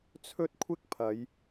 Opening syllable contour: high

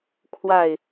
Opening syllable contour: falling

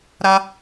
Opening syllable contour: high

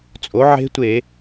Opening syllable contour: rising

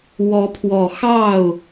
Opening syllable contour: rising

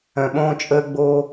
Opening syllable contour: low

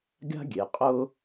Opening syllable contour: high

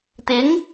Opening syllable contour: rising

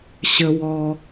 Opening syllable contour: high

